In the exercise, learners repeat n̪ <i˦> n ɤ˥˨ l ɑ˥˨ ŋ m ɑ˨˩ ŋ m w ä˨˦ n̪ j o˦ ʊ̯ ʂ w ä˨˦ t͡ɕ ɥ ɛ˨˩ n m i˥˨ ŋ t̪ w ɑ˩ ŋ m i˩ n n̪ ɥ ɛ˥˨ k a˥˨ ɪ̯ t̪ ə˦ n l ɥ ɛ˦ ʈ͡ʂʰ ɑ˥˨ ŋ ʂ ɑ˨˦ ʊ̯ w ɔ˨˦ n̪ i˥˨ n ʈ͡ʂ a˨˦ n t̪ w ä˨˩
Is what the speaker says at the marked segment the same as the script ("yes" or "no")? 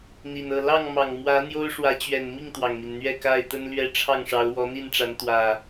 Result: no